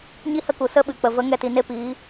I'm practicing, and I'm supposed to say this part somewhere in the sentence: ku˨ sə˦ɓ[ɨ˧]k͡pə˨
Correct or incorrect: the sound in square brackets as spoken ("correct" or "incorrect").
incorrect